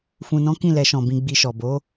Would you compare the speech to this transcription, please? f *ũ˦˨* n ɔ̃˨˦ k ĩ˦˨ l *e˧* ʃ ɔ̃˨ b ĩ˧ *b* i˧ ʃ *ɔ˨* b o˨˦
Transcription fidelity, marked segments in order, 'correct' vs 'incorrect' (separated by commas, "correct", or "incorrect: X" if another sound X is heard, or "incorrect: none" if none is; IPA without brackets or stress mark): incorrect: ũ˨, incorrect: ɛ˧, incorrect: ɡ͡b, correct